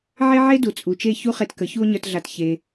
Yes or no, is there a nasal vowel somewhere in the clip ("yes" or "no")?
no